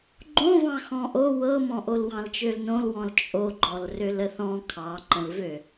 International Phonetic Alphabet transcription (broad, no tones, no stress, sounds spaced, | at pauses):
ɡ͡ǃ õ v ɑ̃ x ɔ̃ ʔ o w ɤ m ɔ̃ ʔ o l w ɑ̃ l t͡ʃ ø l n õ l w ɔ̃ l t͡ʃʼ o ɡ͡ǃ ɔ l r ø l ə θ ɔ̃ kʰ ɑ ǃ ə̃ l v ø